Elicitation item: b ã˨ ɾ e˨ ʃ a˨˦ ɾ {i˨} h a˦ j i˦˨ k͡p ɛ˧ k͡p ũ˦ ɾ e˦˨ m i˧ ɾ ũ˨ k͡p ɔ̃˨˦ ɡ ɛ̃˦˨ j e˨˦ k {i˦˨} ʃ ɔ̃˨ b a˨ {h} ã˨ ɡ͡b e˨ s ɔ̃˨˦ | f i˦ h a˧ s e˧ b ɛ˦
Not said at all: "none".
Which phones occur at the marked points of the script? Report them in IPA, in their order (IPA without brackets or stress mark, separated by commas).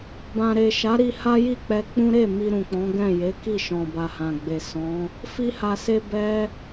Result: i˧, i˦˨, h